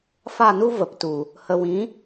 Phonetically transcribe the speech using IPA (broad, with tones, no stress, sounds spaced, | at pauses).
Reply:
f a˦˨ n u˦ v ə˨ p t u˨ | h ə˨ w ĩ˨˦